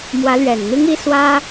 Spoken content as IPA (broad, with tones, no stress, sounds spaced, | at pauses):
m w ä˨˦ l ɥ ɛ˨˩ n n̪ i˦ ŋ i˦ s w ä˦